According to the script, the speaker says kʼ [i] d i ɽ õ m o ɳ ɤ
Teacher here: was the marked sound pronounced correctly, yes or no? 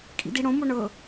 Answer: no